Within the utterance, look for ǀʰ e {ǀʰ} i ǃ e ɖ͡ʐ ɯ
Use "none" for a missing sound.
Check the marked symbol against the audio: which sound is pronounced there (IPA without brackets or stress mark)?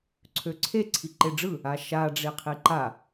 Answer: ǀʰ